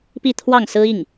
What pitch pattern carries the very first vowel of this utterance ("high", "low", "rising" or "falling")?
falling